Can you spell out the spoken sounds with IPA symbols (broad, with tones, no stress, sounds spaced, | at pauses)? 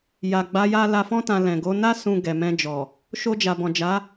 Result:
j a˨ ɡ͡b a˨˦ j a˧ l a˧ f ɔ̃˧ t ã˨ l ɛ̃˨ ɡ o˨˦ n a˧ s ũ˨ ɡ ɛ˨ m ɛ̃˧ d͡ʒ ɔ˨ | ʃ o˧ d͡ʒ a˨ b ɔ̃˨ d͡ʒ a˨˦